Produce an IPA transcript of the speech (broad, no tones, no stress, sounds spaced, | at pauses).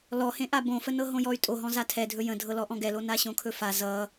l ɔ h ẽ ʔ a b õ f ə n ɤ ɦ õ j ɔ y̯ tʼ o ɦ ɔ̃ z a tʰ ɛ dʱ ɵ j ə̃ dʱ ɤ l ɔ ʔ ɔ̃ ɡ ɛ l o n a ɕ õ kʰ ɵ f a z ʌ